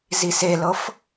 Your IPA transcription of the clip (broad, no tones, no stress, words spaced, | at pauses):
ziselɤf